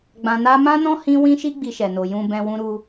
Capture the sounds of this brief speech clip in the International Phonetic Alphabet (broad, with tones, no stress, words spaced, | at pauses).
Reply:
ɡ͡bã˧na˦ mã˦nɔ̃˦ hĩ˦ wĩ˦ʃi˦ ɡ͡bi˧ʃɛ˨no˨ jũ˧bɛ̃˧ wũ˧ɾu˧